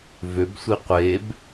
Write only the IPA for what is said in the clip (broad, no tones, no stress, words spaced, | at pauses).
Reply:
vøbsʷi qʷeb